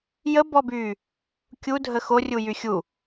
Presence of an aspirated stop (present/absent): absent